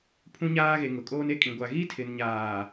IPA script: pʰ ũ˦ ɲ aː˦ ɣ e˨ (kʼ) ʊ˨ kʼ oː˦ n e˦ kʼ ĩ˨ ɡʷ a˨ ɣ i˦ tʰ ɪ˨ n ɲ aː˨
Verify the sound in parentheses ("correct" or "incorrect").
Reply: incorrect